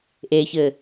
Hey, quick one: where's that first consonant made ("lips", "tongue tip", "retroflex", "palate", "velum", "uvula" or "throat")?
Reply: throat